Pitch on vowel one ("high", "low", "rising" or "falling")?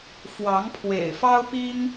rising